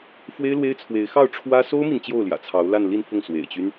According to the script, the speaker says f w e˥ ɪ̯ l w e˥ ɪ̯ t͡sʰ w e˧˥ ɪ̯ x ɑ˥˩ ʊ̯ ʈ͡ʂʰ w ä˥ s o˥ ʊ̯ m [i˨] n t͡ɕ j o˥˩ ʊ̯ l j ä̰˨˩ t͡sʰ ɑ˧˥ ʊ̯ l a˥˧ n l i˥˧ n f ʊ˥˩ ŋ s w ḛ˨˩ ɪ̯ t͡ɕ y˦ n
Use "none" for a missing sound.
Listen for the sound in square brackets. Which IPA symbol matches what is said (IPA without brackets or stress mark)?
i˨